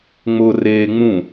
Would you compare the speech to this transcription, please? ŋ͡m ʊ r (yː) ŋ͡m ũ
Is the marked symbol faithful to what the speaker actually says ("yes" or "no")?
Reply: no